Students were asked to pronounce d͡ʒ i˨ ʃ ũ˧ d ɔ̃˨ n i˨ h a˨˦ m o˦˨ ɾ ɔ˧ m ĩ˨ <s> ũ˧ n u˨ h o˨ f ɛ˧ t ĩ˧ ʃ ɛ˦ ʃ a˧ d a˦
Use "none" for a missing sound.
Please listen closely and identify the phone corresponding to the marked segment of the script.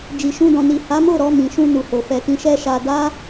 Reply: ʃ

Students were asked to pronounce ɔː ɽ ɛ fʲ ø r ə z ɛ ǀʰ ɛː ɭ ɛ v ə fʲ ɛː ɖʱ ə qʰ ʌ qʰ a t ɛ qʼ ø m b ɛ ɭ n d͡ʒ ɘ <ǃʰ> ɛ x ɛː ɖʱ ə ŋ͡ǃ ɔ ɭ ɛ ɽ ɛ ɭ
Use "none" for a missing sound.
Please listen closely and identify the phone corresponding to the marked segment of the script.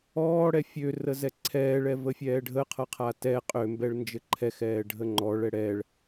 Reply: ǃʰ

